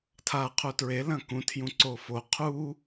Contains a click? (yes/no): yes